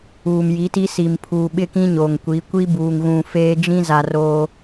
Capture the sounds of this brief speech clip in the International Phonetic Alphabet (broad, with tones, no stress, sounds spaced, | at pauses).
uː˨ m j i˨˦ t i˦ s i˨ m pʰ uː˨ ɓ ɪ˦ k ĩ˦ ɲ o˨ ŋ kʷ i˨˦ kʷ i˦ b uː˨ ŋ ɣ ũ˨ f eː˦ d͡ʒ ĩ˦ z a˨ r o˦